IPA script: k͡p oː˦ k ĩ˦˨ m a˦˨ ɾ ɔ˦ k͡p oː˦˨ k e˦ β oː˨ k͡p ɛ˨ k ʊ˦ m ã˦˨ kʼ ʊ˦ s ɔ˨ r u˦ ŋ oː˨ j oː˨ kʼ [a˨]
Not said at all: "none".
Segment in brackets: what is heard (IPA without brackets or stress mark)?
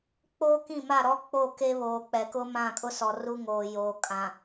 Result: ã˨